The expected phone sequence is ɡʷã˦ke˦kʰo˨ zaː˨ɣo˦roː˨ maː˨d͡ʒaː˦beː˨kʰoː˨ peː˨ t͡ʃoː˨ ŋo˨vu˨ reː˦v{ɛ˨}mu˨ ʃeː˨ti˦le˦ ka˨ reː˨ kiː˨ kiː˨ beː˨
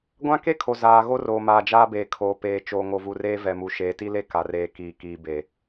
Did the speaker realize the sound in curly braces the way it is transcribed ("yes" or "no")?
yes